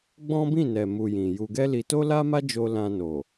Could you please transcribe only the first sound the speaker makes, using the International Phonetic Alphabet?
ɡ͡b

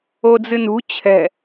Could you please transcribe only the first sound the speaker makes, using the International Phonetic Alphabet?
o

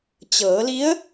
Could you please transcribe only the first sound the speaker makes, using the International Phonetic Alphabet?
t͡ɕ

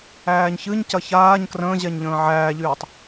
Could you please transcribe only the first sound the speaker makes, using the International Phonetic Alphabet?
æː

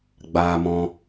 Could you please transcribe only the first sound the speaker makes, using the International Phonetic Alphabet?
ɡ͡b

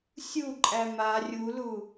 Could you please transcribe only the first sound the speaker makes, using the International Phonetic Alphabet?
sʲ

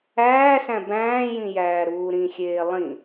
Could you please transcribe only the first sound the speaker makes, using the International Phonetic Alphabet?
æː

